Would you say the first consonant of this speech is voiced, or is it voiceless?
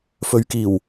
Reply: voiceless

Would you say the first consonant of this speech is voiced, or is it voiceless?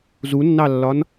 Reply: voiced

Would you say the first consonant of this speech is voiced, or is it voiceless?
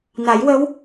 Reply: voiced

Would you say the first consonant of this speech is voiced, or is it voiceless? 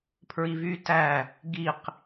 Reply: voiceless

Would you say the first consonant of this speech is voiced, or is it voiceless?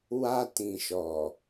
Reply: voiced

